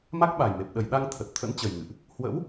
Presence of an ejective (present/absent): absent